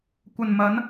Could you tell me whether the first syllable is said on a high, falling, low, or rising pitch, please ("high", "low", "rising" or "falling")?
low